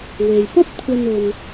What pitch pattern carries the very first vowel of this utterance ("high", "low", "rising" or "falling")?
low